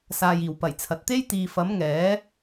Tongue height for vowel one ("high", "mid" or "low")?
low